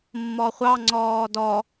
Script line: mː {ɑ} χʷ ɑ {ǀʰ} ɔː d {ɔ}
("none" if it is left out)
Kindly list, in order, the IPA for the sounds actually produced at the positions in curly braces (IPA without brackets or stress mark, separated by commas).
ɔ, ŋ͡ǀ, ɔ